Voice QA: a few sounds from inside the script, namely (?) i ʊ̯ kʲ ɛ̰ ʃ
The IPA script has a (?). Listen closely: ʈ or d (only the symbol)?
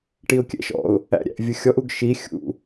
ʈ